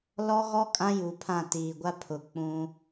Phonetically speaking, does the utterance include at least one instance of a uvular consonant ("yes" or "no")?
no